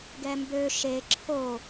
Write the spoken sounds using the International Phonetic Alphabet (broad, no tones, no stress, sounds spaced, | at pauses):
ɡ ɛ m b ø ʃ e ǁʰ o